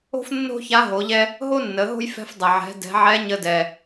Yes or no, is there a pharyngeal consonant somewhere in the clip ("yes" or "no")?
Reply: yes